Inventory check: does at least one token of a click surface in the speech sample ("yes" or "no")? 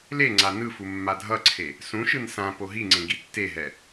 yes